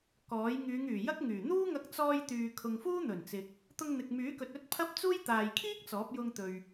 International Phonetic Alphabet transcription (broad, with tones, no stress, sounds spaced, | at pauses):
k ɔː˨˥ j ŋ yː˨˧ ŋ yː˨˩ j ɐ˥ k̚ ŋ yː˨˩ n̪ uː˥ ŋ ɐ˧ k̚ t͡s ɔː˧ j t̪ yː˨ kʰ ʊ˨ ŋ f uː˥ n̪ ɵ˨˩ n t͡s ɪ˨ k̚ | t̪ ʊ˧ ŋ n̪ ɪ˨ k̚ m yː˨˥ k ɵ˨ t̚ ɵ˥ t̚ pʰ ɐ˥ p̚ t͡s uː˥ j t̪ aː˨ j kʰ iː˥ k̚ t͡s ɔː˨˥ p̚ j ʊ˧ ŋ t̪ ɵ˨ ɥ